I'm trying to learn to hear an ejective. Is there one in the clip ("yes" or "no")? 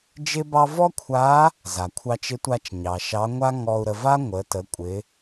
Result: yes